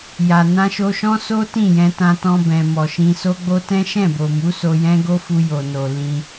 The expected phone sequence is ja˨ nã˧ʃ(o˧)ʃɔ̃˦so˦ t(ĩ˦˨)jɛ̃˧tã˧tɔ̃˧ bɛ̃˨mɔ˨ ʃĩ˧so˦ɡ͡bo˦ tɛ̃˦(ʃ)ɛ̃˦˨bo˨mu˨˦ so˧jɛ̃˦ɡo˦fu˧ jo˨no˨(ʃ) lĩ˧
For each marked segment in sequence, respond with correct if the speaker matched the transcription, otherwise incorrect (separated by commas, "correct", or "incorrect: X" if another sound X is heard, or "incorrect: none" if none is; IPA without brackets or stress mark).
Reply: correct, correct, correct, incorrect: none